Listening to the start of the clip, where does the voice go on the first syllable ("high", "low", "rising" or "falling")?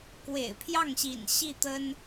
low